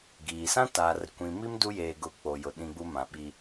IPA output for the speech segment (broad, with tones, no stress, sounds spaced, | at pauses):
ɡ iː˨ s ã˦ t aː˨ r kʷ ĩ˨ m i˦ m d u˦ j eː˨ ɡ ʊ˨ k͡p o˨ j ʊ˨ ɗ ĩ˦ ɡ͡b u˦ m ã˨ ɓ i˦